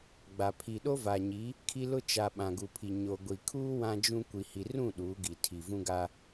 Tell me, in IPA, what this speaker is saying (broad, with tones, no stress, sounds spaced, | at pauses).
ɡ͡b a˨ pʰ i˨ ɗ o˦ v a˨ ɲ i˨˦ | kʰ i˦ l ʊ˦ t͡ʃ a˨ ɓ ã˨ ɡ u˨ pʰ i˨ ɲ o˨ ɡʷ i˨ kʰ uː˦ w ã˦ d͡ʒ ũ˦ kʷ i˨ h i˨ r ũ˦˨ ɗ uː˨˦ ɡ i˨ tʰ i˨ v ũ˦ ɡ a˦